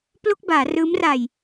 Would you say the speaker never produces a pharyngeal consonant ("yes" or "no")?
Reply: yes